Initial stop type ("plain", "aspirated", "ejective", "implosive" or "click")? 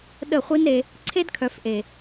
implosive